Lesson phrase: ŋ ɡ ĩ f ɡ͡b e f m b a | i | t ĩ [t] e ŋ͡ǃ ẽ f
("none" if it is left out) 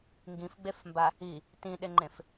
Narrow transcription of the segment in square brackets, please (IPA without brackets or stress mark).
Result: ɗ